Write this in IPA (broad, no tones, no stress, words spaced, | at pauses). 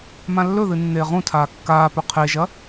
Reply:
mãlːɵðɨ nːeːʁũtʰaː kːaːpɵ qʰeʒɐ